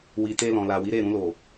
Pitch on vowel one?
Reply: low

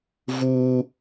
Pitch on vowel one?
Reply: high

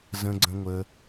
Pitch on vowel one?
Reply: high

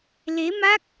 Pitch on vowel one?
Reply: rising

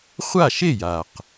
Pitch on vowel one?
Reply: falling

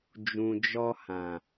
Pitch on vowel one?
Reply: low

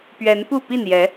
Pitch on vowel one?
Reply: rising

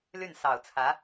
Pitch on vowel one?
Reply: falling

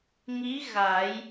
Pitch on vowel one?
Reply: rising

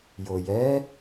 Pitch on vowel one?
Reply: low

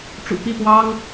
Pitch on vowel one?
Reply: low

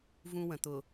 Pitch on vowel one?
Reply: high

